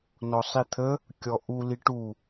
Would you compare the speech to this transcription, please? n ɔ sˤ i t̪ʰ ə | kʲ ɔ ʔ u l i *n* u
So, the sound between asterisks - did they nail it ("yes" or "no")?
no